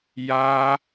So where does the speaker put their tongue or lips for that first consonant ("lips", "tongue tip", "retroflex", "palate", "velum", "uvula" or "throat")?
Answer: palate